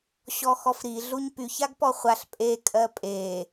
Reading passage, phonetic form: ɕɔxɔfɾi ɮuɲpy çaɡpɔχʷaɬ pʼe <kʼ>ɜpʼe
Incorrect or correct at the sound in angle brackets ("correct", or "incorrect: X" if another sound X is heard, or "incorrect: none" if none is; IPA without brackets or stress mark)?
correct